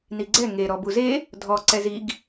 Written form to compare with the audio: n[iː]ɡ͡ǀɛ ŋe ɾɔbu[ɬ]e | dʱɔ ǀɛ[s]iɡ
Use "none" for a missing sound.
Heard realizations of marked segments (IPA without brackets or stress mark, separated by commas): i, z, z